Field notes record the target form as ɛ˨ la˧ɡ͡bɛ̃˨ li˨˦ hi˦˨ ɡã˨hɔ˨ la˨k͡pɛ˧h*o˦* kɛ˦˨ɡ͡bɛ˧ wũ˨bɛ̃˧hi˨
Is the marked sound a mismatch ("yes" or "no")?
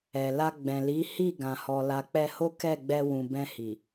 no